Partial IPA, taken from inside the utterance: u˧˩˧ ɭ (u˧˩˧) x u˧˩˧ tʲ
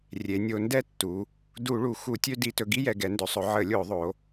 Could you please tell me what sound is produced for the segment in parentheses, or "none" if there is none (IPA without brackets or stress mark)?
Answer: u˩˧